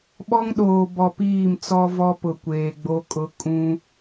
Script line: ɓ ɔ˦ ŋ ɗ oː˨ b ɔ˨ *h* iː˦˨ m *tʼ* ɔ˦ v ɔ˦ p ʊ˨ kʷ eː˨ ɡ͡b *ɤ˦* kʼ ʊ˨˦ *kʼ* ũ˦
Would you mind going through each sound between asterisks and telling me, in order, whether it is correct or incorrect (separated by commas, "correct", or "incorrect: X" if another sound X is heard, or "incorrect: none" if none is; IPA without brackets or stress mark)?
incorrect: p, incorrect: t͡s, incorrect: o˦, correct